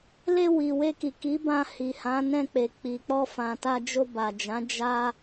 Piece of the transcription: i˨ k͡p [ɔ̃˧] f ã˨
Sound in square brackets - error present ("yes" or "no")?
yes